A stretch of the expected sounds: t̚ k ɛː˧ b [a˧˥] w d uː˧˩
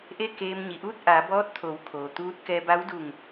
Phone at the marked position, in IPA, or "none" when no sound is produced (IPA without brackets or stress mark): a˧˥